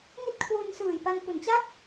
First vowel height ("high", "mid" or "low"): high